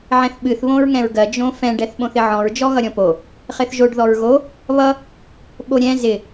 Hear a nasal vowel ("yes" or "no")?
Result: yes